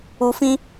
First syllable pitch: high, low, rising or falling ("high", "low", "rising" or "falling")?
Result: low